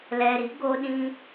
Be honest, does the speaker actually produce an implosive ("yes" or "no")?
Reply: yes